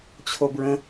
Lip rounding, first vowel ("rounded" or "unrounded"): rounded